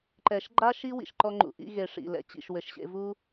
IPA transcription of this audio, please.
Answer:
ǃ ɛ˨ ʃ ɡ͡ǃ a˦ ʃ i˦ w ḭ˨ ʃ ǃ ɔ˧ ŋ͡ǃ ṵ˨ ʔ ḭ˧ ɣ e˨ ʂ ḭ˨ l ɛ̰˨ t͡ɕ ḭ˨ ʃ w ɘ˨ ʃ ɕ ḛ˧ v u˦

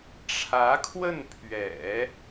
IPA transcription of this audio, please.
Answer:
ʈ͡ʂʰ ä˧˥ kʰ w ə˥˩ n pʰ ɥ ɛ̰˨˩˦

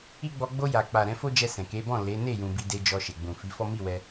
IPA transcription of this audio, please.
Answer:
i˦ ɡ͡b ɔ˧ ɡ͡b o˧ j a˨ k͡p a˨ ɾ ɛ̃˧ f o˦ d͡ʒ ɛ˧ s ɛ̃˨ k e˨˦ b ɔ̃˦˨ l e˨˦ n e˦˨ j ũ˧ b i˦ d e˦ d͡ʒ ɔ˧ ʃ e˨ ɡ͡b ũ˨ f i˨˦ f ɔ˦ m i˦˨ w ɛ˧

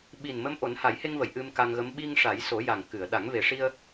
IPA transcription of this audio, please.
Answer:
ɓ i˨˩ n m ə˧˥ m ʔ o˨˩˦ n h a˨˩˦ j h e˧ ŋ v ə˨˩˨ j ʔ ɨ˧ m k a˧ ŋ ɣ ə˧˥ m ɓ i˧ ŋ ʂ a˨˩˦ j s o˨˩˦ j a˨˩ ŋ k ɨ˨˩˨ ə̯ ɗ a˨˩˦ ŋ v e˨˩ ʂ i˧ ə̯

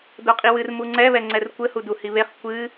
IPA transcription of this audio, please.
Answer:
d o qʼ i w ɨ r m u ŋ͡ǀ ɛ β ɛ ŋ͡ǀ ɛ r kʷ ɘ h u d u h i β e χ kʷ ɨ

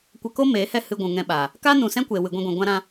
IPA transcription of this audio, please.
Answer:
kʷ ə˧ k o˦ m eː˨˦ h ɛ˦˨ h ɨ˧ ɡʷ ũ˨ ŋ ɛ̃˧ ɓ aː˨ | k aː˦ n ũ˧ s ɛ̃˦ kʷ eː˨ w ɨ˨ ɡʷ ɛ̃˧ ɡʷ ɛ̃˨ ɡʷ ã˧ ɾ ã˧

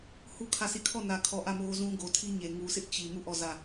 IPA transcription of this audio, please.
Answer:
h u˦ kʰ ä˦˨ s i˦˨ kʰ ɔ˦˨ n ä˨ kʰ ɔ˨ ʔ ä˦˨ m o˦ z ũ˦ ɡ o˨ tʰ i˦ ɲ e˨ ŋ u˨ s ɪ˦ ʔ t͡ɕ i˨ m u˦˨ ʔ ɔ˦˨ z ä˦˨

